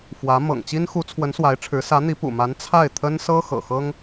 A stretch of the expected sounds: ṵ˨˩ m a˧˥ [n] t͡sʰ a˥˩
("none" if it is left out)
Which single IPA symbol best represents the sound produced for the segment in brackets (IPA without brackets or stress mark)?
n